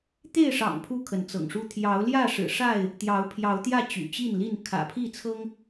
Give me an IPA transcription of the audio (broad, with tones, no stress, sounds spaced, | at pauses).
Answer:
t̪ e˥˨ ɪ̯ ʂ ɑ̰˨˩ ŋ pʰ u˦ kʰ ə˨˦ n t͡s ɤ̰˨˩ ŋ ʂ u˥˨ t̪ʰ j ɑ˨˦ ʊ̯ l j ä˥˨ ʂ ɻ̩˨˩ ʂ a˥˨ ɪ̯ | t̪ j ɑ˨˦ ʊ̯ pʰ j ɑ˨˦ ʊ̯ t̪ j ä˥˨ t͡ɕ y̰˨˩ t͡ɕ i˥˨ n l i˥˨ n kʰ ä̰˨˩ pʰ i˥˨ t͡sʰ ɤ˦ ŋ